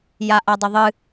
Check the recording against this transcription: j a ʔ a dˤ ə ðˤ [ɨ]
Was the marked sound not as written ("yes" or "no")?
no